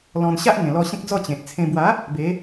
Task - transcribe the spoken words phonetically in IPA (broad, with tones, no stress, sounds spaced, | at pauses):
l ɔ̃˧ n ɕ a˦ ʔ ŋ ẽ˨˩ l ɔ˧ ɕ ẽ˦ k̚ d͡z ɔ˥˧ t͡ɕ ẽ˨ t̚ t͡sʰ ẽ˧ b w a˨˦ | b e˨˦